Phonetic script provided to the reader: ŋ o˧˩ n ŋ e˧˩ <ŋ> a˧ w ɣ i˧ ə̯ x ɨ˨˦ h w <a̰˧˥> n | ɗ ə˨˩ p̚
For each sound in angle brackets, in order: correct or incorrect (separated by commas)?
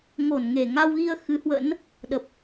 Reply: correct, incorrect